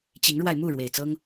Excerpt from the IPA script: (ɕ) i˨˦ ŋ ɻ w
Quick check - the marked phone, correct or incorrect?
incorrect